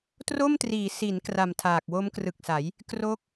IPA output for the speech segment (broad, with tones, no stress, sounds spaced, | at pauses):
t r o˥˩ m t r iː˩˦ s i˩˦ n k r a˨˩ m tʰ aː˨˩ k̚ w o˦˥ m k r ɯ˨˩ k̚ s a˩˦ j | k r o˦˥ k̚